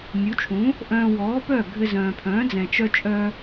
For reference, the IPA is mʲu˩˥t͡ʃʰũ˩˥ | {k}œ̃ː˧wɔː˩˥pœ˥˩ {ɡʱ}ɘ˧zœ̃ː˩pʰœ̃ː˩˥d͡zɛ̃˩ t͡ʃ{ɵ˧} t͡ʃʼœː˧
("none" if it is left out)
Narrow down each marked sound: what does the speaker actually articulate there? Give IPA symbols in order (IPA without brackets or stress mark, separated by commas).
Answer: ʔ, ɡʱ, œ˧